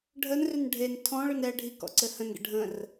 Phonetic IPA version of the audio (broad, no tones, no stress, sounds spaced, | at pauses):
ɖʱ ə n r ʏ n ɖʱ e n tʰ ɔ̃ ɭ ʏ n ɛ ɖʱ i k ɔ̰ ǀ ɘ h ə̃ n ɡ ə̰ ɖʱ ə̃ r